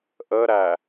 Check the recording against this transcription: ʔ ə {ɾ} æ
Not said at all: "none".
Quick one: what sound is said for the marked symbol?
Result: ɾ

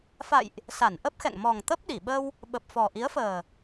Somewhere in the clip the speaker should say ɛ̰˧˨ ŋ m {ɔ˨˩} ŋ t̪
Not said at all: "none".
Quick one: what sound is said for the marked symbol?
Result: ɔ˨˩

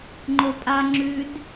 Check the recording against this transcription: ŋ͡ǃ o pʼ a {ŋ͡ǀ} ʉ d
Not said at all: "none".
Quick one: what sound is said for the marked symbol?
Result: ŋ͡ǁ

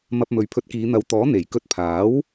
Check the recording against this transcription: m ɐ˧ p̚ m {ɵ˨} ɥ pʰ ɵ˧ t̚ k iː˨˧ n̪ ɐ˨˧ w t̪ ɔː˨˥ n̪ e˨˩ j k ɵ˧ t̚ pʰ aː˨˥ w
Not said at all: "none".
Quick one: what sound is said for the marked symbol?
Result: ɵ˨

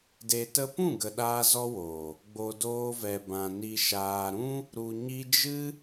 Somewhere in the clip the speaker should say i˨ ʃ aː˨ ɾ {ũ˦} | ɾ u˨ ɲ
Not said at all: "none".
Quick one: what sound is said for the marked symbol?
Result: ũ˦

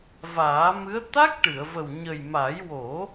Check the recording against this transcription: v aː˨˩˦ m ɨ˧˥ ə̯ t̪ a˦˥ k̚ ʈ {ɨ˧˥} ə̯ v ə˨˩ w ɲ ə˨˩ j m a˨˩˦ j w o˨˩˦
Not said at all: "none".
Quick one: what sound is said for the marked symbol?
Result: ɨ˨˩˨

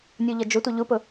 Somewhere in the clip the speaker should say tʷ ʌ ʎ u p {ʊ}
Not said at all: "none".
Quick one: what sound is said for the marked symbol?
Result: ʊ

